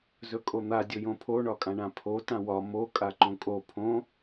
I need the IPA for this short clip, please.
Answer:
z ɵ kʼ o n̪ a dʲ ɵ j õ pʰ o ɳ ɒ kʼ ã ɳ ã pʰ o t ã w ɒ m o kʼ a ǃ õ kʼ o pʰ õ

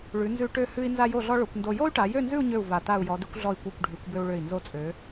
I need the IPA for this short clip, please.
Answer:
ɭ ʉ˩˧ n z ʉ˧ ʈ ø˧ h ʉ˧ i̯ n z a˥ j o˥˧ ɮ ɔ˥ ɭ o˩˧ kʷ n d o˧ j o˥ y̯ ʈ a˩˧ j ø˥˧ n z ʉ˥˧ u̯ ɲ ø˧˩ u̯ v a˧˩ t a˥˧ u̯ j ɔ˩˧ d ʉ˧ kʷ ɮ ɔ˧˩ i̯ kʷ a˧˩ kʷ ɖʱ ʉ˩˧ kʷ b ø˧ u̯ ɭ ø˧˩ i̯ n z o˧ t͡sʼ ø˩˧

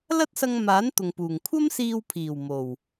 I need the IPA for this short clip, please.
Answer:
l ɐ˥ t̚ s ɐ˧ ŋ m aː˨˥ n t̪ ʊ˨ ŋ p uː˨˩ ŋ kʷʰ ɐ˥ m s iː˧ w pʰ iː˨˩ w m o˨˩ w

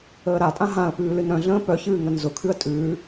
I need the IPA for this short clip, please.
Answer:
əː ɾ a tʼ ã ɦ ã ə̯ p ʉː l ɨ n ɾ œ̃ ɮ ə̃ː p œ ç ɨː ŋ ə n z ʊ kʰ ʉ ə̯ tʼ ʉː

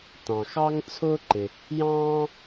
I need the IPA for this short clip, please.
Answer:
t ɑ̃˩ x ɑ˥ ŋ t͡sʰ ʊː˥ ǃ ɪ˩ | j ɑ̃ː˥

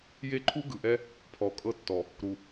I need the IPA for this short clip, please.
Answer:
j e˦ ǃʰ u˦ ɡ ɯ˨ ʔ ɛ˦ | pʰ ɔ˨ kʼ ɤ˦ tː ɔ˨ | ɾ u˨

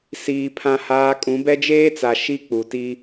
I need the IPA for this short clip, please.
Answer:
s iː˦ pʰ ã˦ h aː˦ kʼ ũ˨˦ b ɛ˦ d͡ʒ eː˦ t͡s a˨ ʃ i˦ k͡p u˨ t i˦

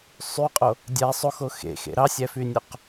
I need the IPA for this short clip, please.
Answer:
sˤ y qʼ o | dʲ æ sˤ o x o x ḛ x ḛ ɾ ɑ sʲ æ f y nʲ o q

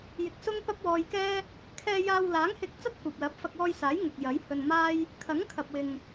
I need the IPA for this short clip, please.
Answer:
j ɪ˧ k̚ s ʊ˥ ŋ p ɐ˥ p̚ w ɔː˧ j k ɛː˥ | kʰ ɛː˧ j aː˧ w l aː˨˥ ŋ h ɪ˧ k̚ t͡s ɐ˥ t̚ kʷ ɐ˨ p̚ l ɐ˨˥ p̚ f ɐ˧ k̚ w ɔː˧ j s aː˨˥ j ŋ ʊ˧ k̚ j ɐ˨˥ j h ɵ˧ n m aː˥ j | kʰ ɐ˨˥ ŋ kʰ ɐ˨ p̚ w ɪ˨ ŋ

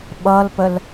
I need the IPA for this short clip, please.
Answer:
ɓ ʌ l p ə l

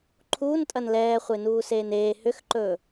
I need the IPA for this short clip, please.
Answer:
ǃʰ uː n tʼ ɐ n l ɛː χʷ e n uː s eː n eː h ʏ x ǃ ɵː

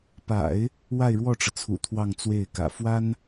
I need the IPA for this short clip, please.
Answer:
p a̰˨˩˦ ɪ̯ | w a˥˧ ɪ̯ ɻ w ɔ˥˩ ʈ͡ʂ ɤ˩ t͡sʰ ṵ˨˩ t̪ʰ w ɑ˥˧ ŋ t͡s w e˥˩ ɪ̯ k ä̰˨˩ f w a˥ n

